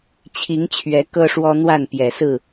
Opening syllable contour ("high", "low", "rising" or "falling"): rising